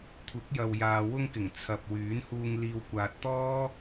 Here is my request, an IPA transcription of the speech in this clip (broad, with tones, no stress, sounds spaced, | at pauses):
kʷʰ ɪ˨˥ k̚ j ɐ˨ w j aː˨ w ʊ˧ ŋ k ɪ˨˩ ŋ t͡sʰ ɐ˨ p̚ w yː˨˥ n h uː˧ ŋ l iː˨ w kʷ aː˨ t̚ t̪ ɔː˥